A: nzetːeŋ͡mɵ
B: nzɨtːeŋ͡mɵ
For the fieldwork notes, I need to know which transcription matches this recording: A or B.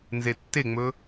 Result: A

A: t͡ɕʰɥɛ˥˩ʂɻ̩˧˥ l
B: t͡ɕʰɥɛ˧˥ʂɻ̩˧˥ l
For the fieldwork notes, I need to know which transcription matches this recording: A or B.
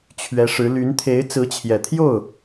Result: B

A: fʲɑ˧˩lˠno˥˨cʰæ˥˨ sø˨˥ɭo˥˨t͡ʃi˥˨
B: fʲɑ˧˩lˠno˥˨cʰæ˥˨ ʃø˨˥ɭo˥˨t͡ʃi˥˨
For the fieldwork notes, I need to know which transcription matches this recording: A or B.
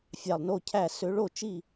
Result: A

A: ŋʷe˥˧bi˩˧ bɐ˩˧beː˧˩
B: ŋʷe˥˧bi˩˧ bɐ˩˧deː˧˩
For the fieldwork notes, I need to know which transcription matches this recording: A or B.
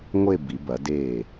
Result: B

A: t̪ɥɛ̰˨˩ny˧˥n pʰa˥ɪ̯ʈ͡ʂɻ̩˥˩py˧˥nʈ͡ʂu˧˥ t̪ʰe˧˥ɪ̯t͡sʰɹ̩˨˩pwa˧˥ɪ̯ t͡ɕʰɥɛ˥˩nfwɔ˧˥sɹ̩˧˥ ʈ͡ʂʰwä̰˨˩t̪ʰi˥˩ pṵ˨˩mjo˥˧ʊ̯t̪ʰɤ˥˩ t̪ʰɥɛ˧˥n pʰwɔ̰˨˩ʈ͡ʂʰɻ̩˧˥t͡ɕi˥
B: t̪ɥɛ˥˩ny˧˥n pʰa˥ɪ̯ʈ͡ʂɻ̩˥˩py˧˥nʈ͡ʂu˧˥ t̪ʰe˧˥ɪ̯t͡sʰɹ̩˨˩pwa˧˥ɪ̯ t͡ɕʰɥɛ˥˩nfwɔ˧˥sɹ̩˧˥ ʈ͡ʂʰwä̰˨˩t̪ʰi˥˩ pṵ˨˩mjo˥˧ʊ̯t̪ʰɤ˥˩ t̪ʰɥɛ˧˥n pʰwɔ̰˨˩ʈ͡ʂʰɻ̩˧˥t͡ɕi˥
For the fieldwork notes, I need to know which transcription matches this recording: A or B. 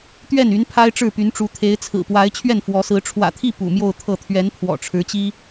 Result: B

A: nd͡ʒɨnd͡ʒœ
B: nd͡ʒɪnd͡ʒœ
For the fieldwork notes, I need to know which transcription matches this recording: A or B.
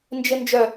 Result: B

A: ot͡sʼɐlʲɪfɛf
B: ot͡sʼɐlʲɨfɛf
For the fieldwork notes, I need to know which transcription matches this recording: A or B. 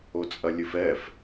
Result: B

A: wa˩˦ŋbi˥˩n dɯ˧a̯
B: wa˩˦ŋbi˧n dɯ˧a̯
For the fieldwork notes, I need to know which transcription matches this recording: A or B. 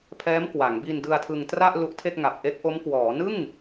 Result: B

